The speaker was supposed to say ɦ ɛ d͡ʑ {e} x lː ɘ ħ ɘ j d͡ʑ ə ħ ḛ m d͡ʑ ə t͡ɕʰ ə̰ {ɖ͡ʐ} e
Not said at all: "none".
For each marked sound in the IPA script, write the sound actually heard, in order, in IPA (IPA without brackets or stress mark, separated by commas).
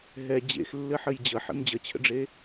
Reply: ḛ, ɖ͡ʐ